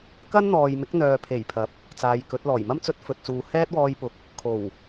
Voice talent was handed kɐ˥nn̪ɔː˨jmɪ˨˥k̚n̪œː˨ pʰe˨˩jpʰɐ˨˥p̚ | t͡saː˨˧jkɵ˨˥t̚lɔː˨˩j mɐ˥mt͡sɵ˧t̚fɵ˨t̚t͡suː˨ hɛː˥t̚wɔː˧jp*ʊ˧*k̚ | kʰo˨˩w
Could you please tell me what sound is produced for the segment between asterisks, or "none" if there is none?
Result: ʊ˨˥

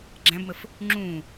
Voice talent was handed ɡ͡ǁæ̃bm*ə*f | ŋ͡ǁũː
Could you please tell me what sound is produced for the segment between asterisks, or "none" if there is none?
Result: ə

